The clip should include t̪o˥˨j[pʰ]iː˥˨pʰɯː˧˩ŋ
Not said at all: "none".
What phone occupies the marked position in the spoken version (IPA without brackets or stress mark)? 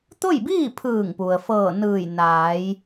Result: b